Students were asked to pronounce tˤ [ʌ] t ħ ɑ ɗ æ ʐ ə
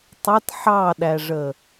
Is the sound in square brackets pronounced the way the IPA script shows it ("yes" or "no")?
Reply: yes